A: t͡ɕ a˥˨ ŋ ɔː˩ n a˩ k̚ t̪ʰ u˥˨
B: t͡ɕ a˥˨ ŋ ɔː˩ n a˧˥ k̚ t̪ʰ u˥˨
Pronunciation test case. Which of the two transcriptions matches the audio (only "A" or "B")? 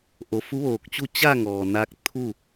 B